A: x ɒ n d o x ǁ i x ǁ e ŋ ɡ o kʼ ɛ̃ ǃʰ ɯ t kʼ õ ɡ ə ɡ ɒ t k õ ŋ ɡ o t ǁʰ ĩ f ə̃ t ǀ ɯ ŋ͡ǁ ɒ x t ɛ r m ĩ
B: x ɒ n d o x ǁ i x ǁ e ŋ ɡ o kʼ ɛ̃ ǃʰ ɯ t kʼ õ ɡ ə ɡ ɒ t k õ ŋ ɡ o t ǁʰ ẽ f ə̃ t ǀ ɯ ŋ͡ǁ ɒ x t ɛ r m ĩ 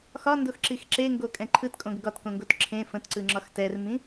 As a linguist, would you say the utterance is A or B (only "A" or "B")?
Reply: B